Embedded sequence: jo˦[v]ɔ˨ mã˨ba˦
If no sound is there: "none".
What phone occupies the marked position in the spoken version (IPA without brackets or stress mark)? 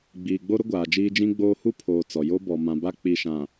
b